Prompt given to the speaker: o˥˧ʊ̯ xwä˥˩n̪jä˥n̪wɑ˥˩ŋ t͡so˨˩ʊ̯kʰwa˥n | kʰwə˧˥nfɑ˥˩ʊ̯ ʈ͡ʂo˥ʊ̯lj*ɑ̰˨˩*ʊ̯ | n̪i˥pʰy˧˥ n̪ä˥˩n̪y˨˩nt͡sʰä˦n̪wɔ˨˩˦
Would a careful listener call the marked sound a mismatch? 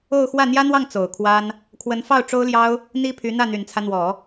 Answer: yes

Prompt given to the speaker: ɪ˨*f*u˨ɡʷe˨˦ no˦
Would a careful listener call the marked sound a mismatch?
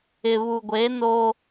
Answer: yes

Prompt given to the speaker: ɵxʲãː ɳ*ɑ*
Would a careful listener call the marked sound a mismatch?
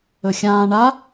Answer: yes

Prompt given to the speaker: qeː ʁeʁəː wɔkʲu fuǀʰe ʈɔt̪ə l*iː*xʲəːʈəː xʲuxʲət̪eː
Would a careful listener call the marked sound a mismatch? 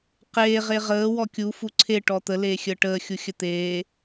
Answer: yes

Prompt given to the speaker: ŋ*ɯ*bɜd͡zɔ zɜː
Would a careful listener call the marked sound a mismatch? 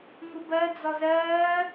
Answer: yes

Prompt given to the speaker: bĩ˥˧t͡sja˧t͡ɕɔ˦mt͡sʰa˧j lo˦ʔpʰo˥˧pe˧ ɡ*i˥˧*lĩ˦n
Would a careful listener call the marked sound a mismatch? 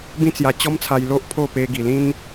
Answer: yes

